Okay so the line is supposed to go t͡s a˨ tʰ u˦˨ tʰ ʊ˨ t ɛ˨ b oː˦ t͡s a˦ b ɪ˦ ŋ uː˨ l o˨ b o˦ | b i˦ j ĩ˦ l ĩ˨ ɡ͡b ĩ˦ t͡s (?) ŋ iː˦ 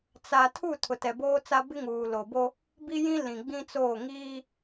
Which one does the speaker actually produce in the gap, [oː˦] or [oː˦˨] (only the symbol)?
oː˦˨